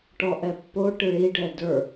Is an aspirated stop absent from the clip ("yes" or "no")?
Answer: yes